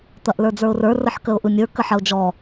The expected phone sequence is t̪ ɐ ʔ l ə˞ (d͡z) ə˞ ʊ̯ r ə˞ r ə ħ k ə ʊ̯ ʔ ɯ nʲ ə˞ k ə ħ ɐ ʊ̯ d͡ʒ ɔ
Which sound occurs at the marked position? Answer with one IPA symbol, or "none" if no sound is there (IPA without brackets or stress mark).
d͡z